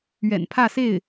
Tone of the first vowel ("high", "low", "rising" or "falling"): low